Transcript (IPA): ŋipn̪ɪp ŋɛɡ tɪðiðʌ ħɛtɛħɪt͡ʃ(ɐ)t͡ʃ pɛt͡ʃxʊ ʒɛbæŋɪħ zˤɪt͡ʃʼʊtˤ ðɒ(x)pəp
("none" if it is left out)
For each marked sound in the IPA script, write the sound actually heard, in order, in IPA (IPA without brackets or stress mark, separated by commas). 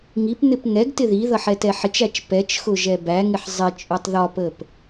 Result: æ, none